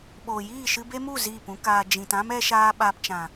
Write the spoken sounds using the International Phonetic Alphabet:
ɓoː˨jiː˦˨ʃɨ˧ be˦mu˦˨ ziː˦˨pũ˦kaː˧ d͡ʒĩ˨tã˦m ɛ˦ʃaː˦ ɓaː˧pt͡ʃã˨

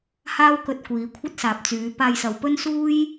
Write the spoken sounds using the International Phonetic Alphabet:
haː˥wkɵ˧t̚ kʷiː˨˧kʷʰɐ˥t̚saː˨p̚t͡syː˨˧ paː˧jsɐ˨wpɵ˥n suː˥j

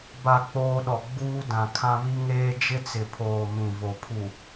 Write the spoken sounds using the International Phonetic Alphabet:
ba˨ k͡poː˦ɗɔ˨ ɡ͡buː˦dã˨kʰã˦ βi˦ŋeː˦ d͡ʒɪ˦t͡sɪ˨pʰoː˨ mĩ˨vo˨pʰu˨

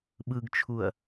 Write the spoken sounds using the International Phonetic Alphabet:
ɓɯɡt͡ʃʰuɐ̯

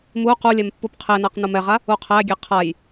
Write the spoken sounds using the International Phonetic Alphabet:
mu qulʲɛm pːupqʰenaq numɛʁa | uqʰæɡʲe qʰaj

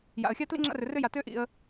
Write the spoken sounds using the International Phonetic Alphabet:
ja̰˩ə̯xʲa˥tlḭ˥ŋ͡ǁa̰˦ rʏ˩rʏ˦ja˩tʏː˦ ʔḭ˩ə̯

